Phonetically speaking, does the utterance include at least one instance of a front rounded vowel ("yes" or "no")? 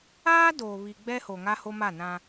no